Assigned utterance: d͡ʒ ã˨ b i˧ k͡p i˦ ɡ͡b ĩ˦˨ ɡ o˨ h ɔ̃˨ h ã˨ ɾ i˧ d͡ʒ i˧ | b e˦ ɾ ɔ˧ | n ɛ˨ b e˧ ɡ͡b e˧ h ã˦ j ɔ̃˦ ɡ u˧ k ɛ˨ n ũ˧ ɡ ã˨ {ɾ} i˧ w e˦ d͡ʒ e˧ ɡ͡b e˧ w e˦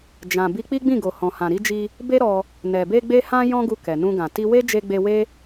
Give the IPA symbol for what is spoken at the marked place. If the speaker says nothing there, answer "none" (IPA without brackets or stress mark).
t